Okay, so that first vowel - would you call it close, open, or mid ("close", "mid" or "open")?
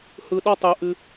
close